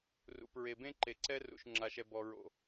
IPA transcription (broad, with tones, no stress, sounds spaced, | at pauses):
r ṵ˨ p ɹ e˨ b ẽ˦ ǃ e˨ ǀ ɛ˦ r ṵ˨ ʃ ŋ͡ǁ a˨ ʃ ɛ˨ b ɔ˨ ɹ o̰˨